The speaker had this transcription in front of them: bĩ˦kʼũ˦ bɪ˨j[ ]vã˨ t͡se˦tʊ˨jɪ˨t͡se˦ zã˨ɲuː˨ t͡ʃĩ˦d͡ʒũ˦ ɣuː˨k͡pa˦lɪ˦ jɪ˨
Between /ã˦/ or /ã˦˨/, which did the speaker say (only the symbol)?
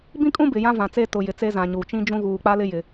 ã˦